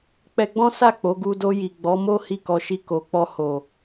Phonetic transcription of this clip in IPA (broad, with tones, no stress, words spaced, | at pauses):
k͡pɛ˧ɡ͡bɔ̃˦sa˦˨ k͡po˨˦ɡu˧do˧ji˨ ɡ͡bɔ˨˦mo˦ hi˦˨kɔ˧ ʃi˧ko˨k͡pɔ˧ ho˨